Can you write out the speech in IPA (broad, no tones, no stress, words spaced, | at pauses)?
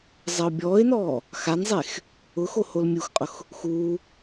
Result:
zˤɛʊ̯bʲɔːɪ̯nɔː | xanzˤex | ʊxo holmʲuxqʼʊx | xuː